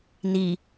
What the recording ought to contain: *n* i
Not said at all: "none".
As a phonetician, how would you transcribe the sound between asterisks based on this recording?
n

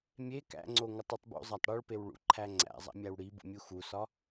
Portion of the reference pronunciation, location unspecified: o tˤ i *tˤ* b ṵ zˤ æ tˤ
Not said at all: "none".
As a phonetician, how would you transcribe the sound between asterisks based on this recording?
tˤ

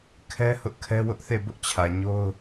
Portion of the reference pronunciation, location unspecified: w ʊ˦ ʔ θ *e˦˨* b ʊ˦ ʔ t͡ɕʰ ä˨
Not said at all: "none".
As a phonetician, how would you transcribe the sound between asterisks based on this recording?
e˦˨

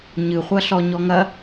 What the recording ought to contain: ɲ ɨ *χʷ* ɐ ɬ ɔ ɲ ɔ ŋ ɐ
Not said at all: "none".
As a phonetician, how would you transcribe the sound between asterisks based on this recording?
χʷ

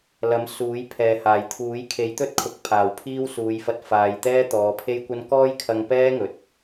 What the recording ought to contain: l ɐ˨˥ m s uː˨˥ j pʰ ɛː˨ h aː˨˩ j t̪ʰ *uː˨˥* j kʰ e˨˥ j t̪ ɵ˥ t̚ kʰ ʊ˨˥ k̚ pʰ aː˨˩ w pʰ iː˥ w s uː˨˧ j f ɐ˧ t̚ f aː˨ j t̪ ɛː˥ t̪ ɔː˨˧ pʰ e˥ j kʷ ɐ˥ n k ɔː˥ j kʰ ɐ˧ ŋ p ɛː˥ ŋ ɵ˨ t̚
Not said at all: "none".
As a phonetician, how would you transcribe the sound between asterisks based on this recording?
uː˨˥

